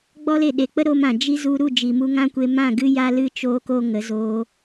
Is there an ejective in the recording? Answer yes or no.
no